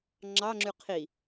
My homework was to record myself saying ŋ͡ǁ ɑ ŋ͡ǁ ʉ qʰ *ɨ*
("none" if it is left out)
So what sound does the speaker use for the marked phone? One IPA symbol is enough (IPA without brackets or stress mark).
i